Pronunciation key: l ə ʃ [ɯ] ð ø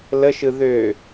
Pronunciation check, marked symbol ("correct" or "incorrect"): correct